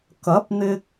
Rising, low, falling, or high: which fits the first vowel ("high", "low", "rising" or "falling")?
rising